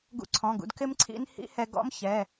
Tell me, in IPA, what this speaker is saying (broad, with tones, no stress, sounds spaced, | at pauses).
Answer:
ɡ ṵ˧ ǀʰ ɔ̃˩˧˩ ɡ ṵ˧ d k ɪ˦˥ m ǀʰ ḭ˦˥ n h ḭ˦˥ h ɛ˧ ɡ ɔ̰˦˥ m ç ɛ˩˧˩